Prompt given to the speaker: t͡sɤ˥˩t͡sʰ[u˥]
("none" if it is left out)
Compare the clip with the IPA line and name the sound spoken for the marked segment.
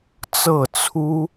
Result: u˥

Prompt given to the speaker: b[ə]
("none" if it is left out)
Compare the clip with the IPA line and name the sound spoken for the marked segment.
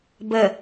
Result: ə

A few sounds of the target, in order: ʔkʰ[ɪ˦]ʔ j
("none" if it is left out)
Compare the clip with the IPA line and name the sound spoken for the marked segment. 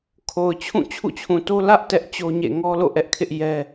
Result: ɪ˦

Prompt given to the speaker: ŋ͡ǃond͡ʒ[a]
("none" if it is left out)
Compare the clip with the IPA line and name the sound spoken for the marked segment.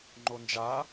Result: a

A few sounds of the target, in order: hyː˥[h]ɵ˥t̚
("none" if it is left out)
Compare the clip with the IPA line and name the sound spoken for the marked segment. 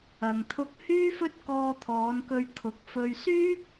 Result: f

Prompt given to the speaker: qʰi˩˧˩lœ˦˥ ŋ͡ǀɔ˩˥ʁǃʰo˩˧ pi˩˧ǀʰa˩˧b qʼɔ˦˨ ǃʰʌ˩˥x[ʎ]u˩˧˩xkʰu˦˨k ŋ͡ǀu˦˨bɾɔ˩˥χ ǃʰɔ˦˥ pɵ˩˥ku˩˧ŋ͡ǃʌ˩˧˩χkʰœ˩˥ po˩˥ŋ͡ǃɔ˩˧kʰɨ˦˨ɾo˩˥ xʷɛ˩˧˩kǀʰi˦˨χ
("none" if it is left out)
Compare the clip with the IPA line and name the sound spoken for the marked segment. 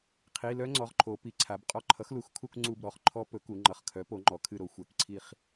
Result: l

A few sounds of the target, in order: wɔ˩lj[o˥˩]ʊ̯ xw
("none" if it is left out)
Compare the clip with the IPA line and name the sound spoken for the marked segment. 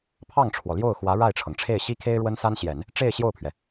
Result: o˥˩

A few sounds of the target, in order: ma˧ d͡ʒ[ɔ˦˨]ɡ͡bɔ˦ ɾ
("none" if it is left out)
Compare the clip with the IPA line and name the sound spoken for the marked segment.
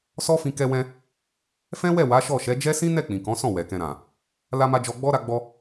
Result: ɔ˧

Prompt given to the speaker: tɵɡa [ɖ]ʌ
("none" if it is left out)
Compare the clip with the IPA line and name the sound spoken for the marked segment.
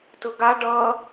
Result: ɖ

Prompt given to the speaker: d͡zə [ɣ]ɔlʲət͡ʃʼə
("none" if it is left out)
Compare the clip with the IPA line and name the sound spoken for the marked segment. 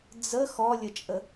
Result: x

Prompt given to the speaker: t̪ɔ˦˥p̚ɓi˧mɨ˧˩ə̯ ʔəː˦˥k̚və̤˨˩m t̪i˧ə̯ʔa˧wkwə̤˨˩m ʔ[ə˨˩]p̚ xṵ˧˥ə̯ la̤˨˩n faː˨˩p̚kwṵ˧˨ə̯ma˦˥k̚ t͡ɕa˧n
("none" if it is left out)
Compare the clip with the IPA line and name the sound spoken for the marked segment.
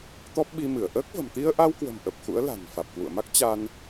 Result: ə˨˩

